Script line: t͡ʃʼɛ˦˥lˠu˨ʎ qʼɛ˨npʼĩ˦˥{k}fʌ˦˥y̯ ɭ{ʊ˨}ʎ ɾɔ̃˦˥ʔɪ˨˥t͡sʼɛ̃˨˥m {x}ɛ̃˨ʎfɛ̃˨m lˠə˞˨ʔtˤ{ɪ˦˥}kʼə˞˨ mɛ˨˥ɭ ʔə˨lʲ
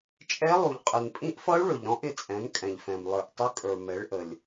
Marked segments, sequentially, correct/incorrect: incorrect: ʔ, correct, incorrect: kʼ, correct

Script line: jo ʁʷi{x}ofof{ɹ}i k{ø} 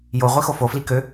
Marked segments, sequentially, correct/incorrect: correct, incorrect: l, correct

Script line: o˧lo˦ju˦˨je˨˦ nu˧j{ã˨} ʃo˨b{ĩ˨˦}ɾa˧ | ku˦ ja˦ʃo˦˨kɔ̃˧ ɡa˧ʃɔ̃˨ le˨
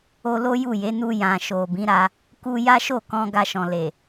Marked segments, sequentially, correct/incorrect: correct, correct

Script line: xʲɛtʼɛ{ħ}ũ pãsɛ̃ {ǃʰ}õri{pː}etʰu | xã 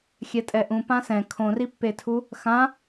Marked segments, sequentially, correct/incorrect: incorrect: ʔ, incorrect: kʰ, correct

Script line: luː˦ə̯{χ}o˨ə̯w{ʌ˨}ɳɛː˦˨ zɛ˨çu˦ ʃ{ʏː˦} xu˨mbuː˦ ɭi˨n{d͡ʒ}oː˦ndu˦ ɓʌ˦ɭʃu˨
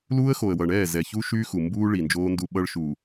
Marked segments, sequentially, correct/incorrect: incorrect: x, correct, incorrect: yː˦, correct

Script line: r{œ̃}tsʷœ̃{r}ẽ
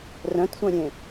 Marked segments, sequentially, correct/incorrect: correct, incorrect: ɾʲ

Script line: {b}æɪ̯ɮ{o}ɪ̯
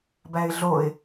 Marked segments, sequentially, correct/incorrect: correct, correct

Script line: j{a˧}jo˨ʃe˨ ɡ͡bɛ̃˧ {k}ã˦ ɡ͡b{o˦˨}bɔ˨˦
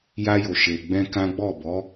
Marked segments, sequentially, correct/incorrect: correct, correct, incorrect: ɔ˦˨

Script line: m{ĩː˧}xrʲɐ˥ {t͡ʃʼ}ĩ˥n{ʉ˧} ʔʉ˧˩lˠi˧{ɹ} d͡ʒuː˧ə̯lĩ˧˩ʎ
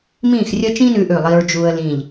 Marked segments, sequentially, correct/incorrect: incorrect: ĩː˥˧, incorrect: t͡ʃ, correct, correct

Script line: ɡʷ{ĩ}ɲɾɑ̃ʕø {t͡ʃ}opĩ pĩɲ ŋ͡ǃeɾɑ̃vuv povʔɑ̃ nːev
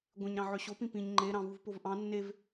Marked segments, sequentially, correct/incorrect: incorrect: ẽ, incorrect: ɕ

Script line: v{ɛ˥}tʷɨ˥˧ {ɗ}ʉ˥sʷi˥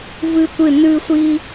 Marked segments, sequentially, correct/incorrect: incorrect: ɨ˥, incorrect: n

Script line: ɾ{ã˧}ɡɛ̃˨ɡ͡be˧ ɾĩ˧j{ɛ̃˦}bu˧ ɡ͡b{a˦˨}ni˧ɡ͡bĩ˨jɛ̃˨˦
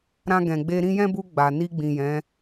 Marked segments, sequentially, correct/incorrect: correct, correct, incorrect: a˨

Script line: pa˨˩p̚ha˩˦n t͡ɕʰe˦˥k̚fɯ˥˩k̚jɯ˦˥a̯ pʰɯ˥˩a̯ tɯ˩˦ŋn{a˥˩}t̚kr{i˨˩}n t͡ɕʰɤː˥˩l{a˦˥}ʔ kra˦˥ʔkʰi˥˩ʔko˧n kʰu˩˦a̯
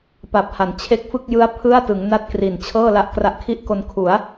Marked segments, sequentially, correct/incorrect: correct, correct, correct

